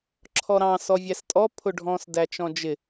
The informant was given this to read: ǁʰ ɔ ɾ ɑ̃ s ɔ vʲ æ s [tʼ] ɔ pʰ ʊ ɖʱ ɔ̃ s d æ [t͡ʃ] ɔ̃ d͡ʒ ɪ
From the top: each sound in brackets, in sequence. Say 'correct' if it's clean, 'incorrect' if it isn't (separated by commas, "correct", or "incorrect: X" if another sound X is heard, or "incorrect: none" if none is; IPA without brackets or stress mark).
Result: correct, correct